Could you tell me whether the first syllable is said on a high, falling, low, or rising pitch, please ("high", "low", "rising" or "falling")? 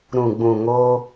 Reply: low